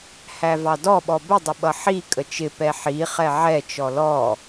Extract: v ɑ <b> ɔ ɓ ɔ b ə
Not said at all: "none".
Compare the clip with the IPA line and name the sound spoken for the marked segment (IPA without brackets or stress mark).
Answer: d